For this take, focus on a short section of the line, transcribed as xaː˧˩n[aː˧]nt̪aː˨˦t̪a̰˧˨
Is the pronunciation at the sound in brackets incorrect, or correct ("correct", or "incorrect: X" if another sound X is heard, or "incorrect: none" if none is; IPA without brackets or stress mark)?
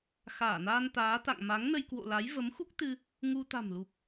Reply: correct